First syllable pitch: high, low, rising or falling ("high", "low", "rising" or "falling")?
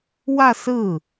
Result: falling